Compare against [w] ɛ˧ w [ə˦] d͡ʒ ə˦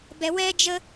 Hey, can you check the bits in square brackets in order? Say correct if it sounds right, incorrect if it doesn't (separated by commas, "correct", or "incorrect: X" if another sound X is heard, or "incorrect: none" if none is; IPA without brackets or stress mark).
incorrect: b, incorrect: ɛ˦